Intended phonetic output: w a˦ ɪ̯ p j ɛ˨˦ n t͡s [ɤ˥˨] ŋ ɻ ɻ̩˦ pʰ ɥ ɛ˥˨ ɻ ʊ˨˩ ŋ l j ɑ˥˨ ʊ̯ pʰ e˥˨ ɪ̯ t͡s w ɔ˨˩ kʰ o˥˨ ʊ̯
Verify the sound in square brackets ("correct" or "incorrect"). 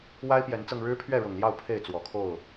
incorrect